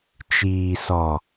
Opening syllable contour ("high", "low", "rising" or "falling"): low